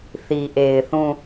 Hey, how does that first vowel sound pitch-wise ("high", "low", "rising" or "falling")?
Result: low